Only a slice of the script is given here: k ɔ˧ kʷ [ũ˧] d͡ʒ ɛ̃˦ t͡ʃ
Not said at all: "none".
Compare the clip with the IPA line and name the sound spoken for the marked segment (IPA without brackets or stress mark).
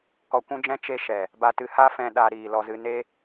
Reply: ũ˦